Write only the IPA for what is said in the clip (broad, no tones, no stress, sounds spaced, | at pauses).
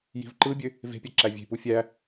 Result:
j i̤ v ǃ ɯ bʲ ø | v e̤ pʲ æ ǁ æ vʲ e̤ p u fʲ æ